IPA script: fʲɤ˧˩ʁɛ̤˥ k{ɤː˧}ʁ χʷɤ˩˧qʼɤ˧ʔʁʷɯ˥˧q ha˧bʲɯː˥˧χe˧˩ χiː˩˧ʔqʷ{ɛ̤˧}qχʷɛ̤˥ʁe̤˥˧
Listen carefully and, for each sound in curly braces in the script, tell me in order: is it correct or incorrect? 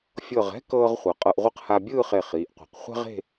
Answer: correct, incorrect: ɛ̤˩˧

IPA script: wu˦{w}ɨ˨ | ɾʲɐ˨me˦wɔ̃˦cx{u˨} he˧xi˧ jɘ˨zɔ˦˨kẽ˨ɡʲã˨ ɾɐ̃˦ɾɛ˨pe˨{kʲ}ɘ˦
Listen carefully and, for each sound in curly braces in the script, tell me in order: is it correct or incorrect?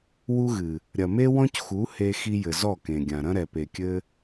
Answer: incorrect: ɣ, incorrect: u˨˦, correct

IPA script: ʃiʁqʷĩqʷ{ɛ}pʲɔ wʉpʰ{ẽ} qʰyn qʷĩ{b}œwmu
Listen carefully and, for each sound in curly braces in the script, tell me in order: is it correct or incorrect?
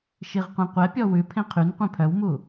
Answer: correct, correct, incorrect: pʰ

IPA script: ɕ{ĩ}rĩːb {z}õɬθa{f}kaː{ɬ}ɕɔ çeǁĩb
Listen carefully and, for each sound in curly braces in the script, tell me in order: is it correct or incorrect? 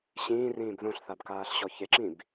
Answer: incorrect: ĩː, incorrect: ð, incorrect: b, correct

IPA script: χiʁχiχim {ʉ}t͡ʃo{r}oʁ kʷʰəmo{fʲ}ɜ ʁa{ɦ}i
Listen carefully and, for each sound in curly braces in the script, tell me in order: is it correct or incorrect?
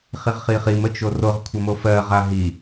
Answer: incorrect: ə, correct, incorrect: f, correct

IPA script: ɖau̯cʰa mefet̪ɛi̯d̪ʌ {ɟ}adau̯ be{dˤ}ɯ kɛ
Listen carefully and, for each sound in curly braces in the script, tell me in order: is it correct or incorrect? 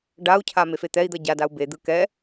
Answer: correct, incorrect: d̪

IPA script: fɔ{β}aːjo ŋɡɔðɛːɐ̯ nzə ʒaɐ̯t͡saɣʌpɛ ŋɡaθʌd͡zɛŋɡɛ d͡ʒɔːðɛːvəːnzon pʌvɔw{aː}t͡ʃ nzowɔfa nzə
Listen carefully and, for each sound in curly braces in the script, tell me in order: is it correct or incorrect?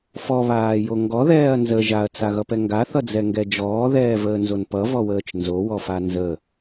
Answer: correct, incorrect: əː

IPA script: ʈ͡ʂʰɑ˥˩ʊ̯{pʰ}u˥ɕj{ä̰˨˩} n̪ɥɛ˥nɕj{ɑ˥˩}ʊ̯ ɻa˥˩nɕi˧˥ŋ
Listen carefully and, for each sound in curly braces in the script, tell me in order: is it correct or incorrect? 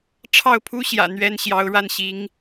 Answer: correct, correct, incorrect: ɑ˧˥

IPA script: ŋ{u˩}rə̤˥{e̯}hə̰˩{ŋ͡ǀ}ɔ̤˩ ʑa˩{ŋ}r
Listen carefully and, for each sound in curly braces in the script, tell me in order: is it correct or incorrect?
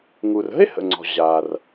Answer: correct, correct, correct, incorrect: none

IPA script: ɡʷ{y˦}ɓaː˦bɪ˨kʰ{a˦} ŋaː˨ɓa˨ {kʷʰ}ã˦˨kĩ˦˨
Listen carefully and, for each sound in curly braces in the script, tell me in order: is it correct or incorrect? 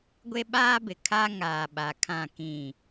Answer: incorrect: e˦, correct, incorrect: kʰ

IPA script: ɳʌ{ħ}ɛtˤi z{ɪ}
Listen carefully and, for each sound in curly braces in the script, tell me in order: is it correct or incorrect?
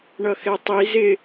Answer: incorrect: x, correct

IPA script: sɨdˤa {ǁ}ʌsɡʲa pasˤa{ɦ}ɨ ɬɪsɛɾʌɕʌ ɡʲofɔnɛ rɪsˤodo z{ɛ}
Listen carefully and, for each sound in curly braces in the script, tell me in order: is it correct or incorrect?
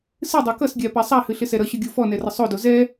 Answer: incorrect: k, incorrect: h, correct

